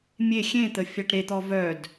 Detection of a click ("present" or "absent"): absent